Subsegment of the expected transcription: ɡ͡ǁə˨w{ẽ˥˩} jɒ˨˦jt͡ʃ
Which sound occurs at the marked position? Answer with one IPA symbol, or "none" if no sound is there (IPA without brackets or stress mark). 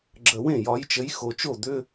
ẽ˥˩